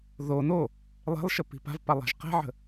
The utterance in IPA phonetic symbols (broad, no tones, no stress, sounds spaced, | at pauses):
ð o n o | lˠ e̤ lˠ ʃ ə p i̤ p a̤ v p a lˠ a̤ ʒ q ɛ̤ ʕ ə̤